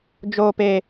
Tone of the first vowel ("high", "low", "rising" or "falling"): high